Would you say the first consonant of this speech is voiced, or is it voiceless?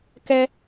voiceless